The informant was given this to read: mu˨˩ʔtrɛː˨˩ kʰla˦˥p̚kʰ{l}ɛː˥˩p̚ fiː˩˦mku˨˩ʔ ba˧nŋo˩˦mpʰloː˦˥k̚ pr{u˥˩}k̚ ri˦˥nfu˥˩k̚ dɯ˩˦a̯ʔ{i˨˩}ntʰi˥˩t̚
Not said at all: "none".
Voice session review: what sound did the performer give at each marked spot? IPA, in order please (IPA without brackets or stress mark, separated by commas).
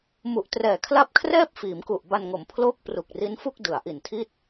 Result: r, u˨˩, i˨˩